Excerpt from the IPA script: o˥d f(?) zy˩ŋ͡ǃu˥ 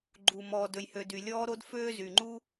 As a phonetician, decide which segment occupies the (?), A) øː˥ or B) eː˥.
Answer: A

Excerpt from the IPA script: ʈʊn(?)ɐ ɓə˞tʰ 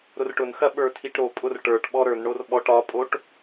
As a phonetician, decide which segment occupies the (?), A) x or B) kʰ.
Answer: A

